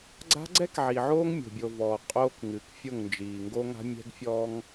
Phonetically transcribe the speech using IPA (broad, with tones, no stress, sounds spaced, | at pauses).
ɡ͡ǀ a̤˦ ɡ͡ǀ ɛ˦ k ʕ i˨ ʕ oː˦ ŋ mʲ o̤˨ bʲ o˨ v ɔː˨ qʼ oː˦ k ŋ ɨ˨˦ k fʲ o˦˨ ŋ n d͡ʒ iː˨ ŋ ɡ o˦ ŋ a̤˦ mʲ ɛ̤˦ ɡ fʲ ɔː˦ ŋ